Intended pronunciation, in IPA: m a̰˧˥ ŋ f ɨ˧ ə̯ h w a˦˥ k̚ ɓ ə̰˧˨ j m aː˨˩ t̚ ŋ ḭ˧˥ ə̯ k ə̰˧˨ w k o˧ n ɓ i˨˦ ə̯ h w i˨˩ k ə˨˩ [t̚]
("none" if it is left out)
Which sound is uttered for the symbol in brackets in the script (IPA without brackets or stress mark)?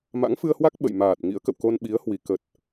t̚